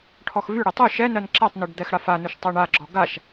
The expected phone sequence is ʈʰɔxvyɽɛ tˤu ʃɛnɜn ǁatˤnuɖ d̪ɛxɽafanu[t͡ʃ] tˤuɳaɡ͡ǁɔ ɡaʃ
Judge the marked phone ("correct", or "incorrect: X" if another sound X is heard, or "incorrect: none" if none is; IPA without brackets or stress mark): incorrect: ʃ